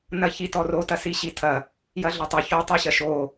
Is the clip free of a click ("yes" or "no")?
yes